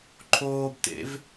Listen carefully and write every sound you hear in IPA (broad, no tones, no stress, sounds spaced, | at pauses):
ǃʰ oː b t ḛ v